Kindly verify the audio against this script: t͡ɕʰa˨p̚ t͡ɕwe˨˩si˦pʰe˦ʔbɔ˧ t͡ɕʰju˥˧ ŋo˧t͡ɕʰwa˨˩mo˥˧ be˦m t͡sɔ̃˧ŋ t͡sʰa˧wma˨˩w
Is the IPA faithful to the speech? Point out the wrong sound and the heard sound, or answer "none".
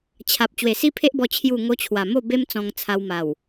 none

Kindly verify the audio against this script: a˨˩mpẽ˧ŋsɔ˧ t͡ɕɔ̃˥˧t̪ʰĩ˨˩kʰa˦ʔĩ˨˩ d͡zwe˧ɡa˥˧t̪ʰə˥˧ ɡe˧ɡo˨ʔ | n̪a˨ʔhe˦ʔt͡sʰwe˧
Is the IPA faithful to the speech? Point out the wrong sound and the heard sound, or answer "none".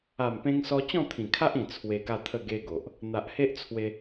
d͡z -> t͡sʰ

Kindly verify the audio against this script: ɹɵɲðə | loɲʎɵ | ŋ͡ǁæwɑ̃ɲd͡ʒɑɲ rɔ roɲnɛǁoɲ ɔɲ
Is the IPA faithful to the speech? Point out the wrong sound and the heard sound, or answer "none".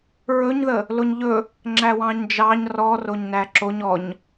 ɛ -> æ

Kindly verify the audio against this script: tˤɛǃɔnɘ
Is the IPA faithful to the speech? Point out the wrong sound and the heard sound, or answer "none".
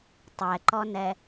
ɘ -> ɛ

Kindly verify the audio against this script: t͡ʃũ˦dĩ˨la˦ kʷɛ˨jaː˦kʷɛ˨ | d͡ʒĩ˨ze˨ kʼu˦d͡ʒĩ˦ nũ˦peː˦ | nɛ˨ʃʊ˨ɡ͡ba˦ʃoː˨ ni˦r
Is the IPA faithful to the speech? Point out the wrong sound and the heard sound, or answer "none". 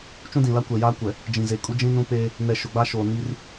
none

